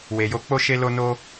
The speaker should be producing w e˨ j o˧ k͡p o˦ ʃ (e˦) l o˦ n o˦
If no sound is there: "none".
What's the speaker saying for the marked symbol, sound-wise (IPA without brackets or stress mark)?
e˦